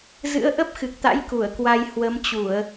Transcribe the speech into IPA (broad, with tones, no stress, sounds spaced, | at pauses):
z ɨ̰˧˥ ə̯ ʔ ə˦˥ p̚ x ɨ˨˩ k̚ t̪ a̰˧˥ j k u˧˩ ə̯ k w a˧ j h w ə˨˦ m t͡ɕ u˧˩˨ ə̯